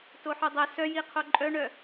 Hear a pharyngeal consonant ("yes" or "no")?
yes